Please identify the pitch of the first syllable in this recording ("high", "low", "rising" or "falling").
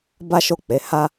high